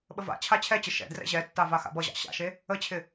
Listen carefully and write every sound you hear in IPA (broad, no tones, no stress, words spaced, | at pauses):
ɓəva̰ t͡ɕʰat͡ɕʰɛt͡ɕə ʃɛ̰ drɛ̰ʑɛtːava xa̰bʌʑɑ̰ ɕa̰ʃe | ət͡ɕʰɪ